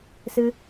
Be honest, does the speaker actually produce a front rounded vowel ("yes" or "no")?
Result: no